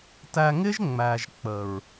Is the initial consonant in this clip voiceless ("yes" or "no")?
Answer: yes